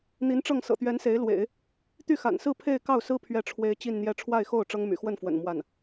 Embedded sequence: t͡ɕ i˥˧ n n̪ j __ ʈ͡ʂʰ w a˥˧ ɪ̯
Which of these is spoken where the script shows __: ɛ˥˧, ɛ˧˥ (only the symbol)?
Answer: ɛ˥˧